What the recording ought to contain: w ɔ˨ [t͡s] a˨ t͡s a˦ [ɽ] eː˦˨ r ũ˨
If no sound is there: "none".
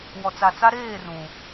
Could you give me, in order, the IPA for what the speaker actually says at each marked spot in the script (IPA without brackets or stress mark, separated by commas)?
t͡s, ɾ